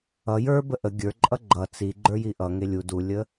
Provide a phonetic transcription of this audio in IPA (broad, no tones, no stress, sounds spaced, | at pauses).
ʌ j ə˞ b ə ʔ ə ɡʲ ə˞ ǃʼ ʌ ɡ͡ǃ ʌ t͡s i ɡ͡ǃ ə˞ j i ʔ ʌ ŋ e lʲ u d u lʲ ə